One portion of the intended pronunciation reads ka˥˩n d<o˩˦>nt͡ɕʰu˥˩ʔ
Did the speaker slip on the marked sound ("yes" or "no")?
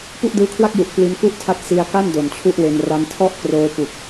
yes